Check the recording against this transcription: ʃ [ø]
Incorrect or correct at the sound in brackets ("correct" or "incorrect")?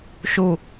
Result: incorrect